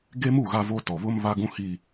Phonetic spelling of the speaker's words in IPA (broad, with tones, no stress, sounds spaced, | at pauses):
ɡ e˦ m u˦˨ ɣ a˦ v o˦ t ɔ˨ β ʊ˦ m β a˦ ɡ ũ˦ h i˦